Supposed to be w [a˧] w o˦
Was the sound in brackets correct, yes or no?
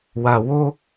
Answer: yes